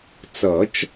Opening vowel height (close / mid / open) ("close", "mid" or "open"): mid